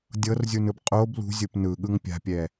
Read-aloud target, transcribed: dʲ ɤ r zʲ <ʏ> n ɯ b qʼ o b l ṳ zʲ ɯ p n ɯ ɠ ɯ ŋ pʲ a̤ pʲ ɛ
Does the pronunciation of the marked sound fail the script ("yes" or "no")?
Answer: yes